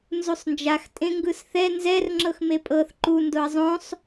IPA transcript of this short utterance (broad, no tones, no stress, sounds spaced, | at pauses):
n z u sˤ n d͡ʒ a x tʼ ẽ ŋ ɡ ɯ s θ ɛ n z ɛ r ŋ͡ǁ ɤ x m e pʼ ɤ θ ǃ u n d o ɐ̯ zˤ õ sˤ